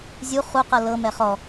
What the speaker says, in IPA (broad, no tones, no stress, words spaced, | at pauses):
zʲu χuqɤ lɤ mɛχɔ